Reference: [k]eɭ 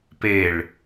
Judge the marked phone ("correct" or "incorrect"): incorrect